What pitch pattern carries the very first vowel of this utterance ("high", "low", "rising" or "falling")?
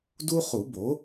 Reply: high